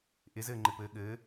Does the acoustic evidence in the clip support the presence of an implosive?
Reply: yes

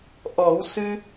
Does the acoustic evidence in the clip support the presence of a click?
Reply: no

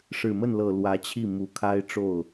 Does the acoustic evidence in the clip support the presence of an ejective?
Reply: no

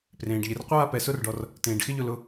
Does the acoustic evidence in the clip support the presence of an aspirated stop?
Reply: no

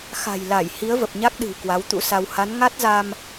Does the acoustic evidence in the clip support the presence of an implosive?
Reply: yes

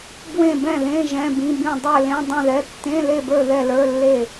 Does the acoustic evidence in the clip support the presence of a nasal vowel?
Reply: yes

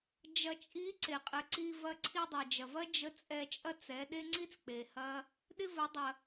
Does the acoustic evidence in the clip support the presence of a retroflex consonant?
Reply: no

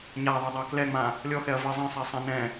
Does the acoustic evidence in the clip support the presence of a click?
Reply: no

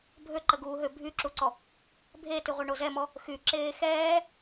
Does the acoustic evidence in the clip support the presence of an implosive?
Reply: no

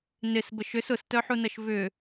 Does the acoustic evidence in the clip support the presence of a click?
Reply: no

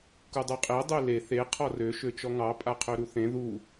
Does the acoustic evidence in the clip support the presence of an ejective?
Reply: yes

